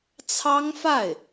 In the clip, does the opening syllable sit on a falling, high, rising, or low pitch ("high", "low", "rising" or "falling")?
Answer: high